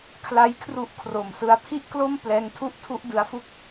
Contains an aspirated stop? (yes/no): yes